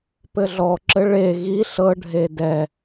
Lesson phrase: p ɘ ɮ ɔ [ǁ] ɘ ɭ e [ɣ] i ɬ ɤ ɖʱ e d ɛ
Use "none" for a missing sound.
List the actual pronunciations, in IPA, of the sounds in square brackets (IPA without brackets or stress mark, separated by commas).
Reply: ǁ, ɣ